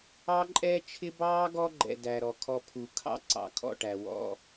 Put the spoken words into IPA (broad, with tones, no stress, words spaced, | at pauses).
ɑ˦ǃʼɛː˦t͡ʃʰɪ˦ bɑː˦ ɡɔ˦ɡ͡ǃɛ̰˨ dæ˨ɾɔ˨ kʰɔ˨ pʰu˨ kʰɑ̰˦ ǀɑ̰˨kʰɔ̰˦˨ʈæ˨ wɔ̰˦